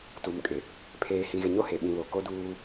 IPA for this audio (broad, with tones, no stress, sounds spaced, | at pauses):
t u˨ m kʼ ɪ˨ | pʰ eː˨ h ĩ˨ ɣ ɪ˨ ɲ o˦ h e˨ ɓ ĩ˨ β o˨ k o˦ d uː˦